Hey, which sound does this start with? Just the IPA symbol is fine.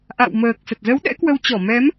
ʔ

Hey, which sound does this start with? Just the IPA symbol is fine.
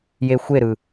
j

